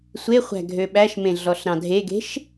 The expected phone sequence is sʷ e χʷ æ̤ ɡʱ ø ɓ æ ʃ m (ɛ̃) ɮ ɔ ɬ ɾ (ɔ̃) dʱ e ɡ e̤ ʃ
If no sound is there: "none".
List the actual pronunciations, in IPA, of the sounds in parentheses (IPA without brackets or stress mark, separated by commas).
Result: ẽ, ɑ̃